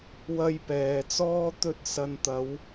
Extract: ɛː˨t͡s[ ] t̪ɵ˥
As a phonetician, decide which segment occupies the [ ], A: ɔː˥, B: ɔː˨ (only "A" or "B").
A